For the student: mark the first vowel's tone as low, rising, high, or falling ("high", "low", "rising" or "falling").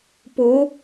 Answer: rising